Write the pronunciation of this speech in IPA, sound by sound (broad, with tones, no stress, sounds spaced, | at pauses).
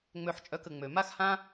ŋ͡m ø˧ ħ t͡ʃʼ œ˧ k ə˨ ŋ͡m ø˨ m a˦ x h ã˦